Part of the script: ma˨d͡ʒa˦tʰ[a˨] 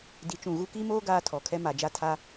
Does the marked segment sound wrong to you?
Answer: yes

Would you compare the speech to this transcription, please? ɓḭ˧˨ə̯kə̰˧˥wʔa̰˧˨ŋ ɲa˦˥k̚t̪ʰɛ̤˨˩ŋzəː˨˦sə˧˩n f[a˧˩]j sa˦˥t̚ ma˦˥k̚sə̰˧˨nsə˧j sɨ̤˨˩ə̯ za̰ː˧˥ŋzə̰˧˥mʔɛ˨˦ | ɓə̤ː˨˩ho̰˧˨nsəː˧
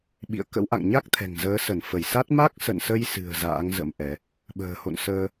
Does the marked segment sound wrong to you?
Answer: yes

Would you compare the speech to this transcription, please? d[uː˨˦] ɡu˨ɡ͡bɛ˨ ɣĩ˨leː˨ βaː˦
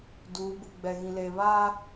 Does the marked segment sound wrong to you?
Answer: no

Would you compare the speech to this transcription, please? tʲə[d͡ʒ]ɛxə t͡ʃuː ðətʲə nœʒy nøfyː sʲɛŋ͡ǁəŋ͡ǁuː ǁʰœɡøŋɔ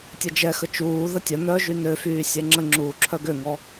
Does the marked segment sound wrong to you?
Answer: no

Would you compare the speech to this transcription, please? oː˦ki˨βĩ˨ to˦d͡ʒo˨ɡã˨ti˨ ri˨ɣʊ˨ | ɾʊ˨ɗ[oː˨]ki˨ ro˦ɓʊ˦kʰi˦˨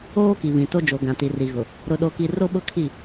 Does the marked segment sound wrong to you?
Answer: yes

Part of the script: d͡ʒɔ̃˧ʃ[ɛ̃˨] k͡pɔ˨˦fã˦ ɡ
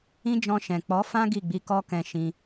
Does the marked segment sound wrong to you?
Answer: no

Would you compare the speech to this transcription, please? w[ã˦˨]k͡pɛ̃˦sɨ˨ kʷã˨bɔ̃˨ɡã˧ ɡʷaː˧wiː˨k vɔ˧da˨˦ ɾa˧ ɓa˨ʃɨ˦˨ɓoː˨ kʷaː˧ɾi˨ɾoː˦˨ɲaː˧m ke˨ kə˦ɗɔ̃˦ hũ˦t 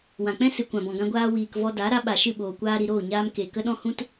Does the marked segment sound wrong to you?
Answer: yes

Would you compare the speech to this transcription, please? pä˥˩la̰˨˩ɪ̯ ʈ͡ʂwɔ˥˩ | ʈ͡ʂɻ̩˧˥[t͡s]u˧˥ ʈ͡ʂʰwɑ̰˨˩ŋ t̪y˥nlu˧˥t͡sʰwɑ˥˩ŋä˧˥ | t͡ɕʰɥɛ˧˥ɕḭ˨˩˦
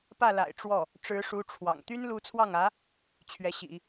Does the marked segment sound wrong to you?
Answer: yes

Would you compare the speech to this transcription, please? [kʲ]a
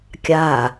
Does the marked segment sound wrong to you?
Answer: no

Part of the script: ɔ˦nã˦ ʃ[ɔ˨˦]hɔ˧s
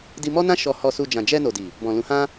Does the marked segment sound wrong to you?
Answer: yes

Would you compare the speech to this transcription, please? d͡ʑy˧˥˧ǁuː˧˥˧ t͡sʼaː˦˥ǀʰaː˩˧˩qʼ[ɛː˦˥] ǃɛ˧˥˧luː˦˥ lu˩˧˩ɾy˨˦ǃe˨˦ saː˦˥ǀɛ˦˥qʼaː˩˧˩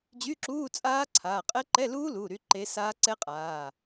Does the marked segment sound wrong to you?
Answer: yes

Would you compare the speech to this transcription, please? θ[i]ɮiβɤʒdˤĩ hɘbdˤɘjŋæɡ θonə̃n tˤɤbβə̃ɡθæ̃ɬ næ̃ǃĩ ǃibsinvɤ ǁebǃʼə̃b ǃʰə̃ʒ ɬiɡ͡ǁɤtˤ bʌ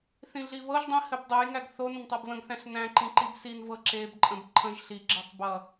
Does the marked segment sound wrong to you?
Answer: yes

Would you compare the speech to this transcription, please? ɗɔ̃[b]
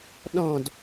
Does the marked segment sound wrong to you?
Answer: yes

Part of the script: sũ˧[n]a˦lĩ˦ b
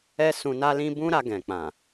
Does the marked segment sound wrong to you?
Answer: no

